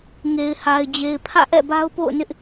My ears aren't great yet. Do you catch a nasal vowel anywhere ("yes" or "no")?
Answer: no